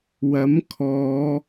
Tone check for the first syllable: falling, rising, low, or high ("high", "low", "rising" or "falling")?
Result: rising